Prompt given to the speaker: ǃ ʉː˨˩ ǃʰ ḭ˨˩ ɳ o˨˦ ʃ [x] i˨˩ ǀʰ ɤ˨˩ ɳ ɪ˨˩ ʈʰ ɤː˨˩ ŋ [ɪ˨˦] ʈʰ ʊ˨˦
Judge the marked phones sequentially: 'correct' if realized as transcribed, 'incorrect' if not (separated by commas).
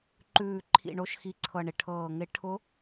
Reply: correct, correct